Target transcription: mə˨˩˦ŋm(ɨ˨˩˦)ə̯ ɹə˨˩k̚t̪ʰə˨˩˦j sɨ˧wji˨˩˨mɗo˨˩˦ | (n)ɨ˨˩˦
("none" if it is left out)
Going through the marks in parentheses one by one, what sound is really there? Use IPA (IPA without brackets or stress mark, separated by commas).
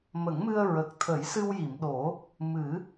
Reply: ɨ˧, m